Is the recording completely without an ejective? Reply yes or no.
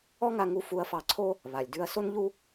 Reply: yes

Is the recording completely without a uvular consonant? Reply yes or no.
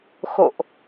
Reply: yes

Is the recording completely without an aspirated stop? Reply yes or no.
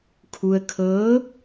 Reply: no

